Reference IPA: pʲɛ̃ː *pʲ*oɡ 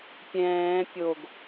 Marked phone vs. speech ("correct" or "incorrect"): correct